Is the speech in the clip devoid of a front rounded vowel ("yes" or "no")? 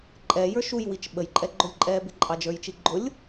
yes